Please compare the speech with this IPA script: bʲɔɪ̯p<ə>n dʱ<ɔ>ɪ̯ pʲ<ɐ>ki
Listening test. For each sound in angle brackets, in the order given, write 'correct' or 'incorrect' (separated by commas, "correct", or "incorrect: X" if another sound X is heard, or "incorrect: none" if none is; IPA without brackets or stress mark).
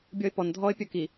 incorrect: ɔ, correct, correct